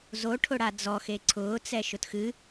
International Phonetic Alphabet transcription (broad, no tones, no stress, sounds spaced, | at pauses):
z o ʈʰ ʊ ɽ a d͡z ɔ x e ǀʰ ʊː t͡s ɛ ʃ ʊ t x ɨ